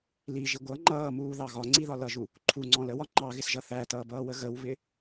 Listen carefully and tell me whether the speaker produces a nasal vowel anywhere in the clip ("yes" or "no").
yes